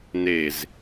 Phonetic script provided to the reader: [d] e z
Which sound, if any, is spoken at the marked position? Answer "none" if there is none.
n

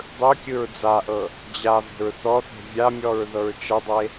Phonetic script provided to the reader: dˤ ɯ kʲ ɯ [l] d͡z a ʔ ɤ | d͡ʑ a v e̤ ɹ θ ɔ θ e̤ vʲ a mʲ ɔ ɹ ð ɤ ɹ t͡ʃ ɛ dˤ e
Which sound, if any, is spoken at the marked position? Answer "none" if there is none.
ɹ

